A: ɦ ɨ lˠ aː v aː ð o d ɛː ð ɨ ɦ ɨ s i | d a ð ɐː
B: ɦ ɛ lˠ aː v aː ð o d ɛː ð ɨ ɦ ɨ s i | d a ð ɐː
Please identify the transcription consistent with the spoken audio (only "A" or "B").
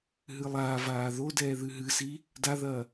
A